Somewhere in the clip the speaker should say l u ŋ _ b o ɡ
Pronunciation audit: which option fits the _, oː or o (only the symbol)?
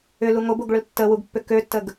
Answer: o